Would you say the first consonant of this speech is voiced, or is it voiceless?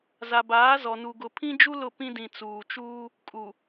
voiced